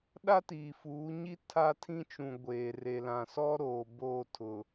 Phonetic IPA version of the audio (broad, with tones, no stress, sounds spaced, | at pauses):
ɗ a˦ t iː˨ f uː˨˦ ɲ i˦ tʰ a˦ tʰ ĩ˦ t͡ʃ ũ˨ ɡʷ eː˨ r e˨ l ã˨ s ɔ˦ ɾ oː˨ b oː˦˨ tʰ ʊ˨